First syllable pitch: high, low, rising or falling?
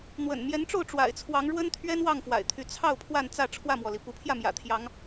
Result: low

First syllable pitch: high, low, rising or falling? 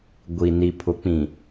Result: low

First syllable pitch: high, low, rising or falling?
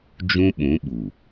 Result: high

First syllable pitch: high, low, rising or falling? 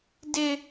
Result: high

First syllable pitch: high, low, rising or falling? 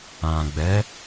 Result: low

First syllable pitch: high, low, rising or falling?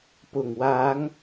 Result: low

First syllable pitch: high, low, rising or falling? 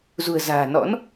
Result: low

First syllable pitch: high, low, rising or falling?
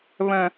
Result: high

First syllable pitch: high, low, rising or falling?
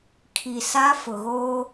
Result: low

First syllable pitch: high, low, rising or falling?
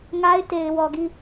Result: high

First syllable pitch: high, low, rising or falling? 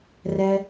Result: low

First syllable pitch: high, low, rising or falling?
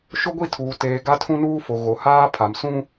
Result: high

